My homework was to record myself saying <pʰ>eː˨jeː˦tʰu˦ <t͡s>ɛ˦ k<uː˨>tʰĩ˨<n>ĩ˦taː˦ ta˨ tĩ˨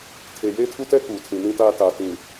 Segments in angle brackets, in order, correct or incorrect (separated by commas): incorrect, incorrect, correct, correct